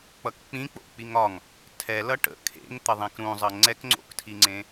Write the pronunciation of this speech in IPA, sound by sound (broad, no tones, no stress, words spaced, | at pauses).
k͡pʌkk͡pĩk͡po̰ k͡piŋɒŋ | tʰɛlʌ ʈə̰ kʰḛŋ t̪əðˤẽkɾũzˤʌ ŋ͡ǀɛkŋ͡ǀo̰ktʰiŋ͡ǀẽ